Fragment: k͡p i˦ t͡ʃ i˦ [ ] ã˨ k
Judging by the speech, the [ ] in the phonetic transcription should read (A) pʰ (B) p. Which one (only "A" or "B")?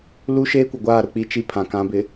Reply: A